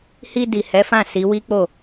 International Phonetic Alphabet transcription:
h i˧ d i˨ h ɛ˨˦ f ã˦˨ s i˨˦ w i˦ k͡p o˦˨

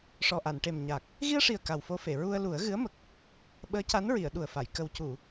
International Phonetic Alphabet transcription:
ʂ ɔ˨˩ ʔ a˨˩˨ n ʈ e˨˩ m ɲ a˨˩ k̚ | ɣ i˧ ə̯ ʂ i˨˩ ə̯ k a˨˩ w f o˧ f e˨˩˨ ɹ u˧ ə̯ l u˨˩˦ ə̯ ɣ ɨ˧˥ ə̯ m ə˨˩ k̚ | ɓ əː˧˥ c a˧˥ n ɹ i˨˩˨ ə̯ ɗ u˨˩ ə̯ f a˨˩˨ j k ə˨˩ w c u˨˩˨

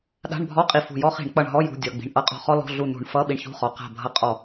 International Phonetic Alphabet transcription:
ɗ a̤˧˥˧ ɳ bʱ ɔ˧˥˧ qʼ i˧˩ f ṳ˧˩ j ɔ˥ χ i̤˧˩˧ ɳ k͡p ʌ˧˩ ɳ ɦ ɔ˧˥˧ j ṳ˩˧˩ dʲ ʌ˩˧˩ ɡ͡b i̤˩˧˩ ɳ ʔ ʌ˧˥ qʼ ɔ̤˧˩ χ ɔ˥ l ɔ̤˧˥˧ ɮ u˧˩ n ṳ˧˩˧ ɳ f ʌ˧˥˧ ɓ i˧˩ ɳ ç ṳ˧˥˧ χ ɔ˩˧˩ q a̤˧˩ bʱ ʌ˧˩ qʼ ɔ˧˩˧

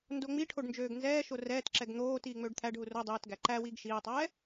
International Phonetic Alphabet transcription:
n d o ŋ͡m i ʈʰ o ɖ n d͡ʒ øː ɡ n z ɛː ʃ o r ɛː t ǁ ɛ ɡ n̪ oː t iː ŋ͡m øː ɖ t̪ʰ æ ɖ ɦ u r o dˤ iː t ɡ æ ǃ æ w iː ɡ ʃ iː tˤ ɛː

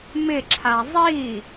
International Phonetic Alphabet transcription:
m ɪ ǁʰ a zˤ i

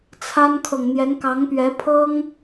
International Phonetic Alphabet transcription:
t͡sʰ a˥ n kʰ ɤ˨ ŋ n̪ j ɛ˧˥ n k ɑ˧˥ ŋ p ɥ ɛ˧˥ pʰ ɤ˥ ŋ

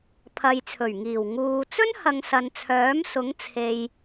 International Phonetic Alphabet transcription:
pʰ ɐ˨ j t͡sʰ ɵ˨˩ ɥ ŋ iː˨˩ w ŋ uː˨ t͡s ɵ˥ n h ɐ˨˧ ŋ s ɐ˨ n t͡sʰ œː˨˥ m s ʊ˨˥ ŋ t͡sʰ e˨ j

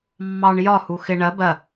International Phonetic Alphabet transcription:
mː ɑ ɳ j ɒ h u x ɪ ɳ ɜ b ɜ

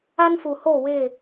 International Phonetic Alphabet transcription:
a˦ n f u˨ h o˦˨ w ɪ˦˨

